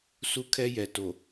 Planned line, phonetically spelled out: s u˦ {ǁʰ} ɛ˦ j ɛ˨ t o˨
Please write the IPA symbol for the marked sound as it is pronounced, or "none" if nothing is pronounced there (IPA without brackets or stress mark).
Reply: kʰ